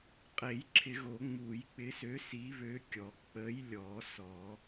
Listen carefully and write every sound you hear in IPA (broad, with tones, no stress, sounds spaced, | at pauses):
qʼ e˨˩˦ j ǁʰ ɪ˨˩˦ ɣ o˨˩˦ ŋ͡m u˨˩˦ j k͡p ɪ˨˥ s ø˨˥ s i˨˥ β ø˨˥ kʲ ɔ˨˩˦ k͡p ə˨˥ j lʲ ɔ˨˩˦ s ɔ˨˩˦